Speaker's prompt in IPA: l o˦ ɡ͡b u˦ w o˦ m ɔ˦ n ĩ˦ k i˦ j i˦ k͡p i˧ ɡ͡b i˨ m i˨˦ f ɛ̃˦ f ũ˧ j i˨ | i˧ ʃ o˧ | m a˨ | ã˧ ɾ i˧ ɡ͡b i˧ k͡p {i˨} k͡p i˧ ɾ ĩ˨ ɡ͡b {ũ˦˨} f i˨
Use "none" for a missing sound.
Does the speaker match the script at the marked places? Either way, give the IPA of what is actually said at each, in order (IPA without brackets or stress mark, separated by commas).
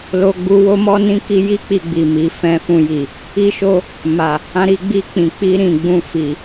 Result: ĩ˨, ũ˧